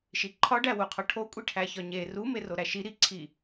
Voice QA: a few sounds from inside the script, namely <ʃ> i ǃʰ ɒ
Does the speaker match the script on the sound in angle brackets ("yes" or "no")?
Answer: yes